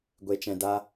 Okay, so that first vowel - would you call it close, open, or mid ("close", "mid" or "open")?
mid